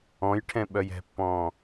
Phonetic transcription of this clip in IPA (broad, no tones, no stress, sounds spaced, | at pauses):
ɔ̃ j ʈʰ ɛ̃ ɓ œ j ɛ̤ pː ɔ̃ː